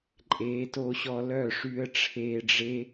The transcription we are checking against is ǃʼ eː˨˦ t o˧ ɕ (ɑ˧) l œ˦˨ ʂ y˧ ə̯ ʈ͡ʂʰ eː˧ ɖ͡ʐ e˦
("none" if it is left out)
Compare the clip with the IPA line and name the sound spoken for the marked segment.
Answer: ɔ˧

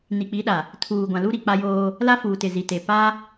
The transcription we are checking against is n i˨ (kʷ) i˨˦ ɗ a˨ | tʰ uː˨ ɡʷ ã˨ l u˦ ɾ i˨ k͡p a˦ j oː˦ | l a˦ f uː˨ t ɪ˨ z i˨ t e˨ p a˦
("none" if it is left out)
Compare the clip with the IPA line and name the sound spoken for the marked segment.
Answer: k͡p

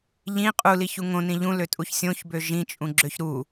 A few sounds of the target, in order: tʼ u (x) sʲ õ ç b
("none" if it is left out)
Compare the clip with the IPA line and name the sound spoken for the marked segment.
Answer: ç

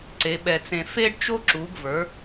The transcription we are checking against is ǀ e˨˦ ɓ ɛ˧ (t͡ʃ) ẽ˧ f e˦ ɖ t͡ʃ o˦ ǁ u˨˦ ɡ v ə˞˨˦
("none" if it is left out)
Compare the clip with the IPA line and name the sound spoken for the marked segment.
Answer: t͡s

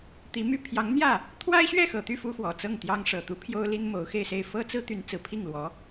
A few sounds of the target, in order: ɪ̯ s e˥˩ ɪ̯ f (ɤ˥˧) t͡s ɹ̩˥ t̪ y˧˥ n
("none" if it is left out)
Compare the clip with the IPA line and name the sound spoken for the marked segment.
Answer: ɤ˥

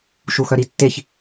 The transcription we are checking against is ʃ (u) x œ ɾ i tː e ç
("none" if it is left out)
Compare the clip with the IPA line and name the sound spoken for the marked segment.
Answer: u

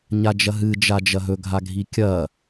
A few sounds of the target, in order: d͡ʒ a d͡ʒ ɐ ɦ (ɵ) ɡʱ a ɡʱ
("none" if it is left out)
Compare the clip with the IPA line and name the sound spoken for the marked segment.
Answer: ɵ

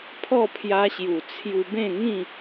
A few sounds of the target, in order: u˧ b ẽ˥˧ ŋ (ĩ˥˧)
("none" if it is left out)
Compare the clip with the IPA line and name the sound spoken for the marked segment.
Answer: ĩ˥˧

